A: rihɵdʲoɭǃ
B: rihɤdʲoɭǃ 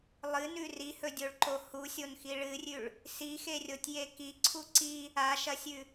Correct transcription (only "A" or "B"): A